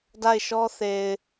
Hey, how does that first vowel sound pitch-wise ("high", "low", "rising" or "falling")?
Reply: falling